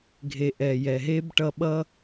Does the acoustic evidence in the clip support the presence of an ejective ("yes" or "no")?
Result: no